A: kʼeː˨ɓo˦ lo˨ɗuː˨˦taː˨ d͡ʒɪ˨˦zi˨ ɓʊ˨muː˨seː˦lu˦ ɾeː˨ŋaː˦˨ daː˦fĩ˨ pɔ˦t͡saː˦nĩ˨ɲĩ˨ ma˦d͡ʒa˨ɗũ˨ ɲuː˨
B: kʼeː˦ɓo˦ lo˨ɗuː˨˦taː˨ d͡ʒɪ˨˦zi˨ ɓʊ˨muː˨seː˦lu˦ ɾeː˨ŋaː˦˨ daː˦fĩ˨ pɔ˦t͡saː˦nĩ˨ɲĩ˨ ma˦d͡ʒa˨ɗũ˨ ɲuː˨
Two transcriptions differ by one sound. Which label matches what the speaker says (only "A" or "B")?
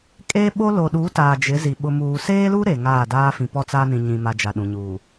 B